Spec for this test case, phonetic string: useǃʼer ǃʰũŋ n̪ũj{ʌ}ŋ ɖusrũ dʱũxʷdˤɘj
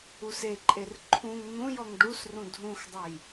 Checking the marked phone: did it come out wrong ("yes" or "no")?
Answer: yes